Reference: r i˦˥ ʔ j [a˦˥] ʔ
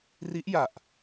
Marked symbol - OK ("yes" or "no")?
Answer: no